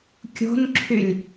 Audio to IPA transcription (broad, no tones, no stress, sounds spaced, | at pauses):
kʲ o̤ n ǁʰ y lʲ